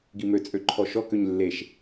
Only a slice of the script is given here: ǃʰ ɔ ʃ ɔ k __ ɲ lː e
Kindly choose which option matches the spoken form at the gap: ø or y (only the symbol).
ø